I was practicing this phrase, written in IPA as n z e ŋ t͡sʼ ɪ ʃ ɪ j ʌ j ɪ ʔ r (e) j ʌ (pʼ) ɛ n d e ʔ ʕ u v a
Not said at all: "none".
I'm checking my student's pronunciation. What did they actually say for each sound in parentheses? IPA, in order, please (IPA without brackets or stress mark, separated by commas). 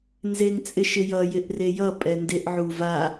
e, pʼ